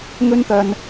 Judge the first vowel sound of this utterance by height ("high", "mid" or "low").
mid